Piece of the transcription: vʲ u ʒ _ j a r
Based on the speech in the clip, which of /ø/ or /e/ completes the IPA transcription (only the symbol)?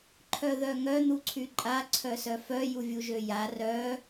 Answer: ø